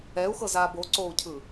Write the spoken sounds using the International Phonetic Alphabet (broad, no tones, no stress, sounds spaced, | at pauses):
ɛ u̯ x ɤ z aː b o ǀ oː u̯ cʰ ɯ